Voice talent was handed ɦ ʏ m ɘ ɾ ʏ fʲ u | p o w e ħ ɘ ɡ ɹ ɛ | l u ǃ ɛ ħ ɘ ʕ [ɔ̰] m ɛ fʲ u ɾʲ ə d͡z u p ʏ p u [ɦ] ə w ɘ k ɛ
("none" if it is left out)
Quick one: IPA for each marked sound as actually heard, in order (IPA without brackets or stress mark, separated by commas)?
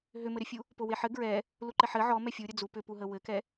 ɔ, ɦ